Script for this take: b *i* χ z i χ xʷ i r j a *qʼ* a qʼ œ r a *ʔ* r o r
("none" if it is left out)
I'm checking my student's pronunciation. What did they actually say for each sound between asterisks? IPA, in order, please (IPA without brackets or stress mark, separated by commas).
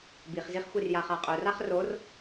i, χ, χ